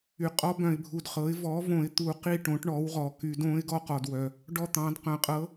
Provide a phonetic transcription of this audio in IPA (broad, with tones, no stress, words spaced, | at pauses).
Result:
y˩˥ qʼɔ˧˥bœ̃˨ɪ̯bʱu˨dχɤ˩˥ɪ̯ vɔ˩˥võ˨˩˦ɪ̯ t̪u˨˩˦qi˦˨ ʈõ˩˥ʈɳɔ˩˥wʁɔ˨ ky˨˩˦dõ˧˥ɪ̯ ɡɔ˦˨qɔ˨dwœ˨ | ɖɔ˦˨t̪ɑ̃˩˥d qœ̃˨qʼɤ˧˥